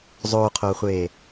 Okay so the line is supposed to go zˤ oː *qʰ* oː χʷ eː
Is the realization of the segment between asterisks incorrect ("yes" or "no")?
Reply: no